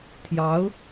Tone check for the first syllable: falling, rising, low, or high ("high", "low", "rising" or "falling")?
rising